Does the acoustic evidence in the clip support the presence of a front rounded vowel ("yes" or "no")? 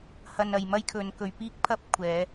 no